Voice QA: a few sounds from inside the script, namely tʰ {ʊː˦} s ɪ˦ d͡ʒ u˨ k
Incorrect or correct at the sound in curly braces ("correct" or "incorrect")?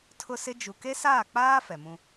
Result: incorrect